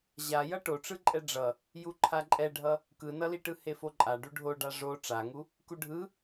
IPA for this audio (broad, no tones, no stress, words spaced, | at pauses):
ʑajʌ ʈoʈ͡ʂɯǃʼɛ ɖ͡ʐʌ | juǃʰaǃʼɛɖʱʌ | kɯnʌliʈɯ hefoǃʼa ɖuɖʱoɖa ʐo ʈ͡ʂaŋu | kuɖʱɯ